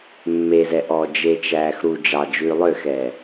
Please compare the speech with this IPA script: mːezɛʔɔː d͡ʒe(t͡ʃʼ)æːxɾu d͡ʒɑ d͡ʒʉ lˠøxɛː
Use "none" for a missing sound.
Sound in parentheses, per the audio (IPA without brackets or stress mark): t͡ʃ